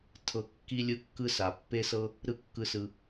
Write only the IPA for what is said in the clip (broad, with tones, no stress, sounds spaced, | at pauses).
tʰ ɤ˧ kː i˧ lʲ ɯ˧ kː ɯ˦ s a˨ pː e˦ s ɤ˦ | ɾ ɯ˦ kː ɯ˦˨ s ɯ˧